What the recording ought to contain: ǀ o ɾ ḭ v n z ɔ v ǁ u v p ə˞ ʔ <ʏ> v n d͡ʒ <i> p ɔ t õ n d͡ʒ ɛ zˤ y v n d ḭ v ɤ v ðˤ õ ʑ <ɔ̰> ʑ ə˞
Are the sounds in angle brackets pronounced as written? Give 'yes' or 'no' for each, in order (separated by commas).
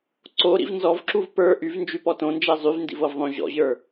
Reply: no, no, yes